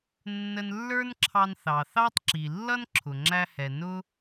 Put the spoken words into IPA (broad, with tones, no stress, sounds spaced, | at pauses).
nː ə˧ n lː ə˞˥ n ǁʰ ɑ˧ n θ ɑ˩ θ ɑ˥ tˤ ǁ i˩ lː ʌ˥ n ǁʰ ʊ˩ ŋ͡ǁ æ˧ h ɛ˩ n ʊ˥